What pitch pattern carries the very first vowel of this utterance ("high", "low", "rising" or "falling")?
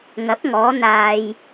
rising